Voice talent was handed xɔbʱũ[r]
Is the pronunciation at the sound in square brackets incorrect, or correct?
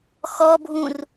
correct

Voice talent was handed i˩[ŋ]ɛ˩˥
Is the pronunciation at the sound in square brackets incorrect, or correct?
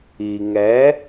correct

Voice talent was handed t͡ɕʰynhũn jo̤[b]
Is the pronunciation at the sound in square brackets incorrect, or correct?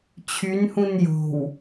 incorrect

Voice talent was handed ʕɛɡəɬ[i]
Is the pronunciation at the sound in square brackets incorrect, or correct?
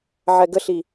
correct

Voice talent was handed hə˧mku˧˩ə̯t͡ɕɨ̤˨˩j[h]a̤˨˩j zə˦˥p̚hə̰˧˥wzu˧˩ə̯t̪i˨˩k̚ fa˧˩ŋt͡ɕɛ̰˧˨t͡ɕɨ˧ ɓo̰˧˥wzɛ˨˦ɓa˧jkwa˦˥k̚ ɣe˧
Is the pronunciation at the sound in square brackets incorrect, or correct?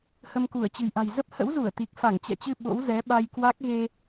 incorrect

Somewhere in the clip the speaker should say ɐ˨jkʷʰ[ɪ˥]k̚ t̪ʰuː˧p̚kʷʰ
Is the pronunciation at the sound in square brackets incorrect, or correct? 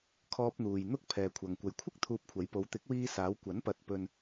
correct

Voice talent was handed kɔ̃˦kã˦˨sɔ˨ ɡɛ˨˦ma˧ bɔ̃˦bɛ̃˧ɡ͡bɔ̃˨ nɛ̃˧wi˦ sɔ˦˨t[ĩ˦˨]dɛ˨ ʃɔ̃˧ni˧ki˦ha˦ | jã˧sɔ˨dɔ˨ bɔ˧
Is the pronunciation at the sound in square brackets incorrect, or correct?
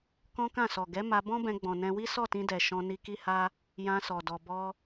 incorrect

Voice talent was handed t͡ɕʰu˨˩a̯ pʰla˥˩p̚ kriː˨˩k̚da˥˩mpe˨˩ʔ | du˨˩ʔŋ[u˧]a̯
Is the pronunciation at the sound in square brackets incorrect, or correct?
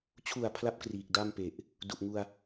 correct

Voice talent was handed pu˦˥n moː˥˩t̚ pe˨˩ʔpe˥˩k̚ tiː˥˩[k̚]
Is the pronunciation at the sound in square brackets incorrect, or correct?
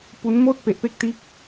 correct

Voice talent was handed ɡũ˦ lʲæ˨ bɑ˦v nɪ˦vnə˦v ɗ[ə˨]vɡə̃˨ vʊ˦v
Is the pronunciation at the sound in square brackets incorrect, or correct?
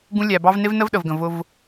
correct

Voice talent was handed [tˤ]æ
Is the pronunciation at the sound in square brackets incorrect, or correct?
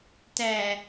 incorrect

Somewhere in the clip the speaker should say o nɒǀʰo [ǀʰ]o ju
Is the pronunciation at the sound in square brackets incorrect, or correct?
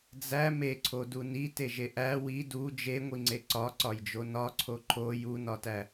incorrect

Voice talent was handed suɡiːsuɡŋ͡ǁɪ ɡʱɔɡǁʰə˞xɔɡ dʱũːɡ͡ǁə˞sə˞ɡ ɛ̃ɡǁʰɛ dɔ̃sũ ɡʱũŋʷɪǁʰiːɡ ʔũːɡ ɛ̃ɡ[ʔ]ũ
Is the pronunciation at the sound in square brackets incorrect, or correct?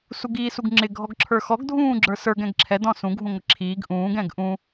correct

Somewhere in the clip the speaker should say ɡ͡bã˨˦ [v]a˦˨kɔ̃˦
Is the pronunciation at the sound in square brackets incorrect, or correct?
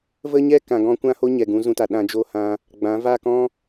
correct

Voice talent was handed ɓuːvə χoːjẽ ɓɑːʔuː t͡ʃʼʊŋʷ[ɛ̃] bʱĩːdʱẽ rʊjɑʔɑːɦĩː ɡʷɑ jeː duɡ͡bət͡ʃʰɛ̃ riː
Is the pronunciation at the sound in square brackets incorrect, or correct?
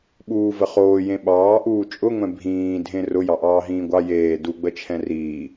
correct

